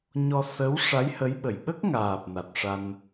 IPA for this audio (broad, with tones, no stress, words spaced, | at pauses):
ɲɔ˧sə˧˥w ʂa˧˥jhə˧˥jɓə˨˩j ɓə˦˥k̚ŋaː˨˩p̚ na˨˩t̚ʂa˧n